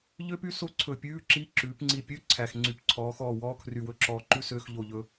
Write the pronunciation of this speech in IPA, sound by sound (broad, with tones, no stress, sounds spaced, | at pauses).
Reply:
ʎ ø˥ p y˥ s o˥ ǀʰ ɵ˧˩ pʲ ʉː˧˥˧ ǁ i˧˥˧ ǁ ʉː˩˧ p ŋ͡ǀ i˧˩ pʲ ø˧˥˧ ǀʰ æ˧˩ x ŋ͡ǀ y˧ p ǀʰ ɔː˩˧ x ɔː˧˩ w ɔː˧˥˧ kʰ r y˧˩ w ɵ˥ ǁ ɔː˧ ǃ ʉ˥ s øː˧˥˧ x ʎ o˧˩ ʎ ɵ˧